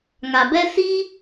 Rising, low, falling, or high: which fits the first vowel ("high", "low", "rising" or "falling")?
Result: low